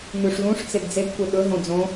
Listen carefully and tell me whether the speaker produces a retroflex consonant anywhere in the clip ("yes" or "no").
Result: yes